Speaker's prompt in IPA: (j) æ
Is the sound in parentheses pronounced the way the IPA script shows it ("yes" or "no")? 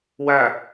no